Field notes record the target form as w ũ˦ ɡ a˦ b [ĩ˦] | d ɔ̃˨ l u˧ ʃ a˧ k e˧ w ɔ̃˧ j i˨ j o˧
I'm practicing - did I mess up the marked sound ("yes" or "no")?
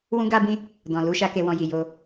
no